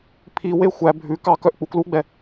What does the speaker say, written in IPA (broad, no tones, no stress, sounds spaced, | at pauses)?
pʰ i w e xʷ æ bʱ ʉ k ɑ k œ ʔ k͡p u k l u ɡ͡b ɛ